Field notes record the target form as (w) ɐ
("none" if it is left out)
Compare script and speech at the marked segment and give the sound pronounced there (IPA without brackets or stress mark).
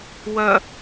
w